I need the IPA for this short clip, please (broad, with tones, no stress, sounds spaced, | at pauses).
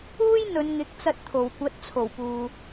uː˥ j n̪ ɵ˨˧ n ŋ ɪ˨˥ k̚ t͡s ɐ˧ t̚ t̪ʰ o˨˩ w kʷ ɐ˨˥ t̚ t͡sʰ o˨˩ w p uː˨